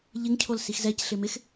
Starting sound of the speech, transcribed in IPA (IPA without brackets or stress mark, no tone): ʎ